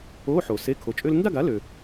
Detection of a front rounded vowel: present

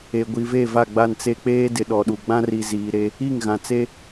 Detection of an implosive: present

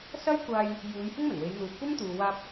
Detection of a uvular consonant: absent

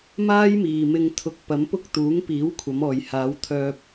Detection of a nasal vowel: absent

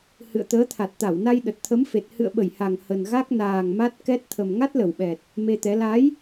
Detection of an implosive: present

